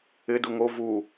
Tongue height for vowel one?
high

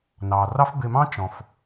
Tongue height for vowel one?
low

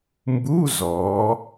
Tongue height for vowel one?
high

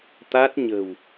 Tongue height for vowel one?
low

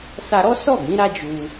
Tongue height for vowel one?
low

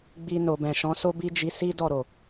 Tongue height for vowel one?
high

